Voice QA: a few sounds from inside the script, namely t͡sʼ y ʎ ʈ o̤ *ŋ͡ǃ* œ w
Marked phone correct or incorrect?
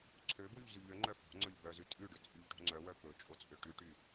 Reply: incorrect